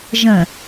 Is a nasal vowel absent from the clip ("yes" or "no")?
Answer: no